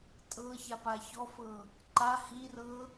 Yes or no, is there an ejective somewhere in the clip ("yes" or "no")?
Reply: yes